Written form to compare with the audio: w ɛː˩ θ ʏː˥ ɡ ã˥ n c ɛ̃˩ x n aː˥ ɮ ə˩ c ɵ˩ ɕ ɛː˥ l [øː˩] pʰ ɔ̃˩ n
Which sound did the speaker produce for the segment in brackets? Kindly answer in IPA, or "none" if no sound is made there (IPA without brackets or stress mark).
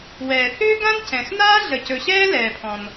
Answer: ɛː˩